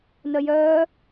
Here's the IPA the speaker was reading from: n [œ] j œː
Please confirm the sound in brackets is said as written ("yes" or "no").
yes